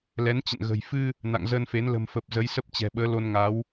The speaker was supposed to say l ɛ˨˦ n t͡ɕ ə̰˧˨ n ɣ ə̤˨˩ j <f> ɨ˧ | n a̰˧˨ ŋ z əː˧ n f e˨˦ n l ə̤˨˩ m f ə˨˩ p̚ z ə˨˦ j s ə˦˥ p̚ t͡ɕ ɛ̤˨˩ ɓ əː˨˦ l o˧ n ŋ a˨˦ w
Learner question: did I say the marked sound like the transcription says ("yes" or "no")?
yes